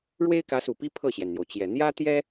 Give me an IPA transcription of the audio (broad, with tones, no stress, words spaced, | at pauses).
ɻwe˥ɪ̯kä˧˥su˨˩pi˥ pʰɤ˥˩ɕjɛ˩nn̪jo˩ʊ̯t͡ɕjɛ˨˩ n̪jä˥t̪jɛ˥